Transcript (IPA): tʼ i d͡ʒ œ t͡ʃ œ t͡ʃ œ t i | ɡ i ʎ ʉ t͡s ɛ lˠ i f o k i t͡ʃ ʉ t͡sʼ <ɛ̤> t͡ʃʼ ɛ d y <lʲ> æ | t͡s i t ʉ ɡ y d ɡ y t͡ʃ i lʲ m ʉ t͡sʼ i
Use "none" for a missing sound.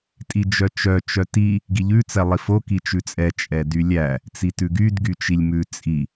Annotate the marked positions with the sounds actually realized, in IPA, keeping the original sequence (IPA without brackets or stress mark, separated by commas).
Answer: ɛ, lʲ